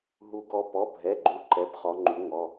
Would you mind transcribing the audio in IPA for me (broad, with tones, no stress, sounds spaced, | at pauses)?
ɦ u˦˥ ɡ ɔ˦˥ p ɔ˧˥˧ bʱ ɛ˧˥˧ ɡ͡ǃ u˦˥ ǃ ɛ˧˥˧ b χ ɔ˦˥ ŋ͡ǃ u˦˥ ŋ ɔ˧˥˧